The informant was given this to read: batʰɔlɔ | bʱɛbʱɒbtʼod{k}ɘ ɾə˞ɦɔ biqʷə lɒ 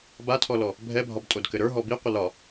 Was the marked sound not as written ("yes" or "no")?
no